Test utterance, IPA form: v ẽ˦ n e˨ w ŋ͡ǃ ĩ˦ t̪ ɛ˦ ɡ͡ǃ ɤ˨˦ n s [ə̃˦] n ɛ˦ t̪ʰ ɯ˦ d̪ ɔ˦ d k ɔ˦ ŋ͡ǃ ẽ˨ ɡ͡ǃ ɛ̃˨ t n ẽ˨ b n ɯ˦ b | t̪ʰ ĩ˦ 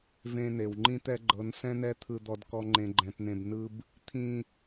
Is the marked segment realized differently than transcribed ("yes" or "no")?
yes